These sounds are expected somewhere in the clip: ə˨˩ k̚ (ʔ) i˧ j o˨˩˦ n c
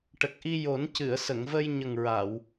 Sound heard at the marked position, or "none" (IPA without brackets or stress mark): ʔ